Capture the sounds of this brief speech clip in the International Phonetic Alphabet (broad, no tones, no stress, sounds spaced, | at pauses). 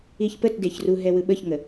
i ç p ə t d e ç r u ɦ ɛ w ɯ ɓ ə ç ŋ ə